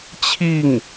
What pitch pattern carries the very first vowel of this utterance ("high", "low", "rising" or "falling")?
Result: falling